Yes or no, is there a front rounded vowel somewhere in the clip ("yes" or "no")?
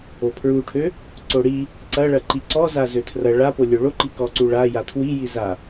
yes